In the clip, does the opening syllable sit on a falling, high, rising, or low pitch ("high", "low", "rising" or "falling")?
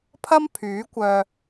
high